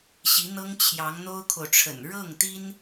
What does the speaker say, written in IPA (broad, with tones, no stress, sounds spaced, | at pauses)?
ɕ i˧˥ n̪ ɤ˥ ŋ t͡ɕʰ j ɑ˧˥ ŋ n̪ o˥ ʊ̯ kʰ o˨ ʊ̯ ʈ͡ʂʰ ə̰˨˩ n ɻ ɤ˥˩ ŋ t̪ i˥ n